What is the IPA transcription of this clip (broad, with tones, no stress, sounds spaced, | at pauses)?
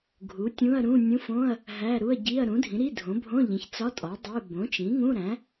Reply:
ɡʱ u˩˥ tʲ ũ˧˥˧ ɐ̯ ɾ ũ˧˥˧ nʲ ũ˧˥˧ f õ˧˥˧ ɐ̯ | ɦ æ˧˥˧ ɾ u˧˥˧ ɐ̯ ɟ i˧˥˧ ɐ̯ ɾ ũ˩˥ dʱ ĩ˩˥ ɾ i˧˥˧ dʱ õ˩˥ bʱ õ˧˥˧ ʎ ẽ˩˥ ç t͡s ɒ˧˥˧ tʼ ɒ˩˥ dˤ e˧˥˧ b õ˩˥ t͡ʃ ĩ˩˥ ŋ ũ˧˥˧ ɾ æ̃˩˥